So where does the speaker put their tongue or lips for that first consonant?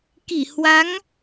velum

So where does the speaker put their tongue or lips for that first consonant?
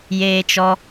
palate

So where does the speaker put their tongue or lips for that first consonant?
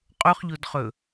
uvula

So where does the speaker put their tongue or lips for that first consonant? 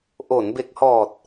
throat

